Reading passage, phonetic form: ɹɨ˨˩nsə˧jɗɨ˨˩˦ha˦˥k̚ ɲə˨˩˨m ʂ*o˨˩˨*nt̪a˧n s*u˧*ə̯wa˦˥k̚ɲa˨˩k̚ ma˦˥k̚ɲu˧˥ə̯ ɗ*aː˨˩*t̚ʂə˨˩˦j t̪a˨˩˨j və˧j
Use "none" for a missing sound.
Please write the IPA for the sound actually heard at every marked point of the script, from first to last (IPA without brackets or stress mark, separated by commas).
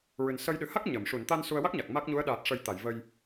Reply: u˨˩˨, u˧, aː˨˩